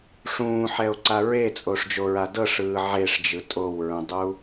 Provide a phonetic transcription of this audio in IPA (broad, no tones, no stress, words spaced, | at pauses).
ʂũːħɛo̯ǀa ɹet͡sʼoːʂd͡ʒoɹa dɤʂɯː ʕeʂd͡ʒɯ tʼowɹũdˤu